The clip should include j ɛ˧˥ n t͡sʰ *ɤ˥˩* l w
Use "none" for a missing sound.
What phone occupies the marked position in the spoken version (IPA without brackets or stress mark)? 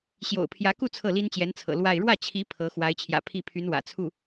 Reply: ɤ̰˨˩